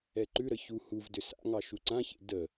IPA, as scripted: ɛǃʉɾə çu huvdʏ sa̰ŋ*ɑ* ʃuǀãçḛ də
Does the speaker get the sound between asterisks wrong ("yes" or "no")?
no